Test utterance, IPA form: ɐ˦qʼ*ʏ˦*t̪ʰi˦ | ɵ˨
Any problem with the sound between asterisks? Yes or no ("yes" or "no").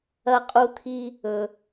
yes